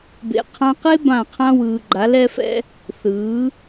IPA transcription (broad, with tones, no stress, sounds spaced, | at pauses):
b ḛ˨ qʰ ã˦ q e˦ b ã˦˨ qʰ ã˦ w ɯː˨ ɡ͡ǃ a˨˦ l ɛ˦ f ɛ̰˦ | θ ɯː˨˦